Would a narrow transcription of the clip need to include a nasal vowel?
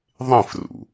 yes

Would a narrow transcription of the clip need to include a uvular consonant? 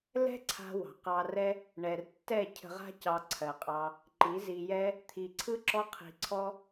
yes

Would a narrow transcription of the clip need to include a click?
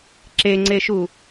yes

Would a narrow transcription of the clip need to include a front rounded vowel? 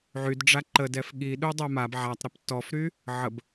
yes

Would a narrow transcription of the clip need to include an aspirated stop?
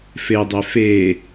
no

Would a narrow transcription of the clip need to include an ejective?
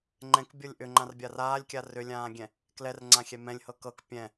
no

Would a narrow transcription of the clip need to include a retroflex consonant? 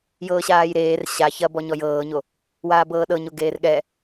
no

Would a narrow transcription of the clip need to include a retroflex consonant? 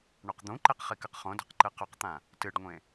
yes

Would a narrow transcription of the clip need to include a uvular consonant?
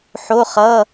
yes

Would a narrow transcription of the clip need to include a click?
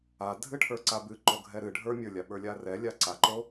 yes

